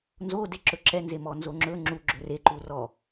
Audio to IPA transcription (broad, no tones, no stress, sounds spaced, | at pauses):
n z o d e ǁ ɵ ǁ ɛ n z e m ɔ n z o ŋ͡ǁ ɵ ŋ͡ǁ u ɡ͡ǁ ɵ r e ǃ u r ɔ